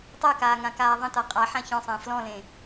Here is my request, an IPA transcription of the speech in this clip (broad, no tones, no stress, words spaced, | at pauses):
tˤɜkaː ŋãkaːðˤə̃ta qʼa ħãçɔ̃sˤə̃ː flɔ̃lẽ